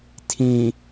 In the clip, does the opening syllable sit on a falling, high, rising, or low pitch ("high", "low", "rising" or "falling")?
low